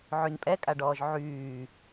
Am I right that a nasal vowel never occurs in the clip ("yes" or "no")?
yes